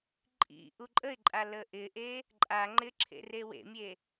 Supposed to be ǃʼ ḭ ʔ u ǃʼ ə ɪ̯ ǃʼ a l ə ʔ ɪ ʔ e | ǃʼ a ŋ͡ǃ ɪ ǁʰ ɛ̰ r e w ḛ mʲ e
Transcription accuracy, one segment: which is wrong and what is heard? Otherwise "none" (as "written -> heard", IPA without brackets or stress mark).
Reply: ɛ̰ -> ḛ